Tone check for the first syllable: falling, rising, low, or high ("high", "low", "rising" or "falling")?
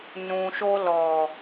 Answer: low